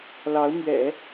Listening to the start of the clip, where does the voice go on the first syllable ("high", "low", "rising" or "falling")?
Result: rising